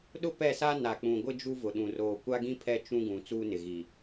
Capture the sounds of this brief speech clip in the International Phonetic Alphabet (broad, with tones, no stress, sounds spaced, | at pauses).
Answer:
ɗ ʊ˦ p ɛ˦˨ s a˦ n a˨ k͡p ũ˨ ɡʷ ɪ˦ d͡ʒ u˦ v ʊ˨ ɗ ũ˨ r oː˨ kʷ a˦ ɡ ĩ˦ pʰ ɛ˦˨ t͡ʃ ũ˦ ɡ ũ˨ t͡s uː˦ n ɪ˨ ɣ i˨